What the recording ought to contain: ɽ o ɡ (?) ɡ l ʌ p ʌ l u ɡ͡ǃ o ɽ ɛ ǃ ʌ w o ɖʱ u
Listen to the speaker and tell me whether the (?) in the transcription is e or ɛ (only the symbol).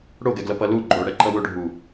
ɛ